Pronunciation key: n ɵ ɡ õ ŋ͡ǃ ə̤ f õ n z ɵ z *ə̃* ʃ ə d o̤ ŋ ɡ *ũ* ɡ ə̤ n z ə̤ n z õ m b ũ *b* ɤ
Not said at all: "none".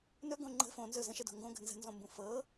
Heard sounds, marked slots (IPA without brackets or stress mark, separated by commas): ə̃, õ, f